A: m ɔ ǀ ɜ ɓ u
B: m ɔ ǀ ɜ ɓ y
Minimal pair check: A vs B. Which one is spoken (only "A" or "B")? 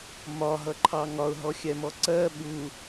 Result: A